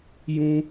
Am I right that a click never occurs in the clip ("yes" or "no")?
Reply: yes